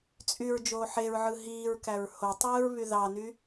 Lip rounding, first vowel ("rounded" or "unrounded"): rounded